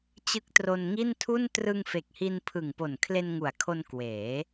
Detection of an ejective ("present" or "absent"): absent